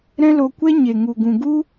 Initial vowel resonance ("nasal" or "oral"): nasal